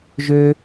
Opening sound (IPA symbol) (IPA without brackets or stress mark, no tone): ʒ